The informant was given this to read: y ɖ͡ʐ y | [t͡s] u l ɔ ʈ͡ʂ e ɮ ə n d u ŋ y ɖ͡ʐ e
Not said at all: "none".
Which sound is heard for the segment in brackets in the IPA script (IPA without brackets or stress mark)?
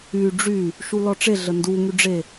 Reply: ʃ